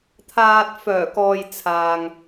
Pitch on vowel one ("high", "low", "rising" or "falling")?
low